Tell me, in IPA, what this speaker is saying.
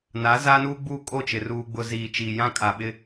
n a˨˦ z aː˦ n uː˦ ɡ͡b uː˦ kʼ o˦˨ t͡ʃ ɪ˨ r uː˨ ɡ͡b ʊ˨ z iː˨ t͡ʃ iː˨ j ã˦ kʼ a˨ ɓ ɪ˦

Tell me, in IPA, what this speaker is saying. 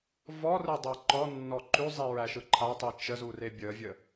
v ɔ r ɯ dˤ e ǃ ɔ nː ɔ ǃ ʉ zˤ i ɹ æ ʃ ɯ ǃʰ a tˤ i t͡ʃ ə z u r e bʲ ə vʲ ə

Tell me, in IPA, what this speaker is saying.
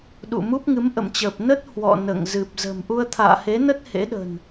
ɗ ṵ˧˨ m u˦˥ p̚ ŋ ɨ˨˦ m ʔ ə̰˧˨ m t͡ɕ əː˨˩ p̚ n ə˦˥ t̚ h w ɔ̰˧˨ n ə̰ː˧˨ ŋ z ɨ˨˩ p̚ z ə̤˨˩ m ʔ u˧ ə̯ t̪ʰ a̰ː˧˨ h e˨˦ n ə˦˥ t̚ h ḛ˧˥ ɗ ə̤˨˩ n

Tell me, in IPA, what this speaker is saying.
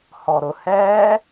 h ɔ ɾ ʊ h ɛː

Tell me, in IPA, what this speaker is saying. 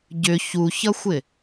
ɟ ʏ ç u ç ʌ xʷ ɪ

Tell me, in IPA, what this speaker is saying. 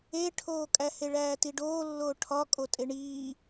e ʈʰ oː kʼ æ h e ɭ æː t i ɖ oː lː oː ʈʰ ɒ kʼ o tʼ e ɳ iː

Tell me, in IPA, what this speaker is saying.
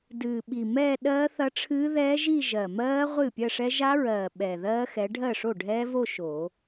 d ɨː˨˩ ɓ i˨˩ m ɛː˥˧ ɗ ɜː˦˥ θ ɐ˦˥ ʈ͡ʂʰ ɨː˦˥ ð ɛː˦˥ ʒ i˥˧ ʒ ɜ˨˩ m ɜː˦˥ ʁʷ ɨː˥˩ pʲ ɜ˥˧ ʂ ɛ˦˥ ʒ a˦˥ ɹ ɜː˨˩ ɓ ɛ˨˩ ð ɜː˦˥ x ɛ˨˦ ɖʱ ɜ˥˩ ʂ o˥˩ ɖʱ ɛː˦˥ v o˥˧ ʃ o˨˩˦

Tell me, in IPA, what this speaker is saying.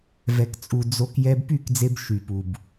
v ɛ˨ k t͡sʼ u˨ d͡z o˧ k j ɛ˧ b p y˦˨ k d͡z e˧ b ʃ y˨ p u˨ b

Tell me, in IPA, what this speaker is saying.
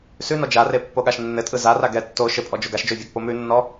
s ʉ n ɔ d͡ʒ a r e pː o ɠ a ʃ nː ɘ tʼ ɯ z a r a ɡ ɛ tː o ʃ ɘ pʼ ɔ d͡ʒ o ɡ a ʃ d͡ʒ o vʲ æ ɡ p o m ʉ nː ɔ

